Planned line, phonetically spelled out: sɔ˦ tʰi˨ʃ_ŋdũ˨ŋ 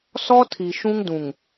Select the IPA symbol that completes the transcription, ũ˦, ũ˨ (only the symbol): ũ˦